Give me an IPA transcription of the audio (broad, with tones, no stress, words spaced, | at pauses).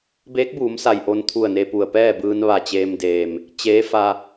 beː˧˥k̚buː˩˧msa˩j ʔo˧nt̪ʰu˧˩ə̯ne˧pu˩ə̯ pɛː˥˨bɯː˧n ʋa˧˩t͡ɕeː˧mdeː˩m | t͡ɕeː˧˥fa˧